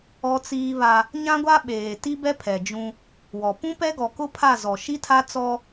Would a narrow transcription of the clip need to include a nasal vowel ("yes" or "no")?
yes